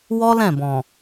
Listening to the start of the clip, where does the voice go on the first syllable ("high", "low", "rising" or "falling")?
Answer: high